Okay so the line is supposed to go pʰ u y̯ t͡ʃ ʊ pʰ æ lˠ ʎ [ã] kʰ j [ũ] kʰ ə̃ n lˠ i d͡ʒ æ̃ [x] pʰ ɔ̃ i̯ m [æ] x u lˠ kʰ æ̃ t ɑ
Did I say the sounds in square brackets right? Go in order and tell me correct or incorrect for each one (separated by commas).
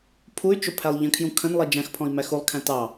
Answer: incorrect, correct, correct, correct